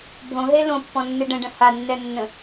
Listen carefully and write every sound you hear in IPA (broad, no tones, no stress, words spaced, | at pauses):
bʱõɦe lõpːɔ̃nːɨ ɖə̃ɖə̃ hanːɛnːə̃